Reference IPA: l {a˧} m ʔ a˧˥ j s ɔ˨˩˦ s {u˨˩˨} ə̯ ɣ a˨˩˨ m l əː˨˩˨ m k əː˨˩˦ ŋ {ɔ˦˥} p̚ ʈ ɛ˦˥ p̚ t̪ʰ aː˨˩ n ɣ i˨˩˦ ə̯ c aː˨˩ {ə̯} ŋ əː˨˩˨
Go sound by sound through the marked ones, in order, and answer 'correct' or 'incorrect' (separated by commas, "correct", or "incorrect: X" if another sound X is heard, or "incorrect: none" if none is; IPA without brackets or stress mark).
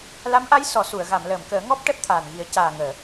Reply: incorrect: a˧˥, correct, correct, incorrect: none